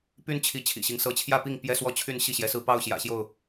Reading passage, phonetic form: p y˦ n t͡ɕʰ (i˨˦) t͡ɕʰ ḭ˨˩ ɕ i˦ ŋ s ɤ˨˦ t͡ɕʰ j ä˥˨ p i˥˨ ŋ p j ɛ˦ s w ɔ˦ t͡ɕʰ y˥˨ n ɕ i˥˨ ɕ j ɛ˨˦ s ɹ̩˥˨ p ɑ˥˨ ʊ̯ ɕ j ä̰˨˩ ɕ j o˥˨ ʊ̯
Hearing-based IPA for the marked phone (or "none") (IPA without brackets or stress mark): i˨˦